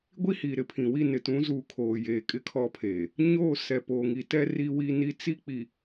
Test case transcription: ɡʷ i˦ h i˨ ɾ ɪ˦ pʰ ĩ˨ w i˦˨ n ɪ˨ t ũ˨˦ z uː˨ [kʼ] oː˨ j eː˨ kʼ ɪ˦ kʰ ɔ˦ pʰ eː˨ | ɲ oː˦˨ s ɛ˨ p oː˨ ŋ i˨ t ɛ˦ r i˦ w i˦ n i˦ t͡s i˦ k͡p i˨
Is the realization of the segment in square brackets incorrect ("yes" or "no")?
yes